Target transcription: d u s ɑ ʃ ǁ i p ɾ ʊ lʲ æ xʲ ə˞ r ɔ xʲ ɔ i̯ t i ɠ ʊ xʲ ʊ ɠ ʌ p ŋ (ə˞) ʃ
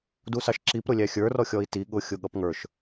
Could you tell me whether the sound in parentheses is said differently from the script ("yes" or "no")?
no